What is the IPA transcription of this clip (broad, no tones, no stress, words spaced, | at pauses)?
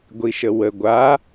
ɡʷiʃəwə ɡʷa